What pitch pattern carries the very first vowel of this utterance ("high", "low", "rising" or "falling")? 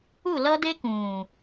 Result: falling